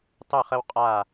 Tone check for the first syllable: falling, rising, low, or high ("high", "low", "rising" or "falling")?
falling